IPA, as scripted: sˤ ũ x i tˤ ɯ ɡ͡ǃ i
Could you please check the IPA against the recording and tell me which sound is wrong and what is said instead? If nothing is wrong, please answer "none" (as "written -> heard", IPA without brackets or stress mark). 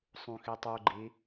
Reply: ɯ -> u